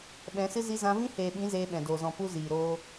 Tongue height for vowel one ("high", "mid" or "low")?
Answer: mid